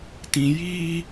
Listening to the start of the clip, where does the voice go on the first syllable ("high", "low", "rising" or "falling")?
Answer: low